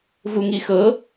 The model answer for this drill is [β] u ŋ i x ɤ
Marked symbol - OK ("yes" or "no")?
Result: no